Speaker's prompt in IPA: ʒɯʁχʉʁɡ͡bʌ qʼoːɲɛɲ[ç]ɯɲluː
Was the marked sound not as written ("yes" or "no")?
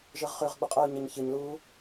no